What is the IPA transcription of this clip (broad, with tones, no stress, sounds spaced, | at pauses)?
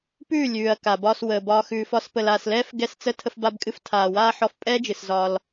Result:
p ʉː˦˨ lʲ ʉː˨ ɐ̯ k a˨ b ɒː˧ s w əː˨ b ɒː˧ x ʉː˨ f ɒ˧ s p ə˨ l aː˨ s l ɛː˦ f ɡ ɛ˦˨ s t͡s ə˦ tʰ ə˧ f b a˧ b kʼ ɨ˧ f tʰ aː˨ w aː˦ ħ ɔ˧ f pʼ ɛː˦ d͡ʒ ɨ˨ s z ɒː˧ l